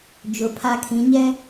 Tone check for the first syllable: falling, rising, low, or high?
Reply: low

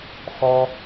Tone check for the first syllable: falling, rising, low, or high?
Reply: high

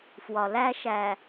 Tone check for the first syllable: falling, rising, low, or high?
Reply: low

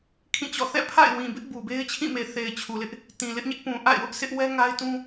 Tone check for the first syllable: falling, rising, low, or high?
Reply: falling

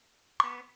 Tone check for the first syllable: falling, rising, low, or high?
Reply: high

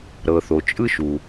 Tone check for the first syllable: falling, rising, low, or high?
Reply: low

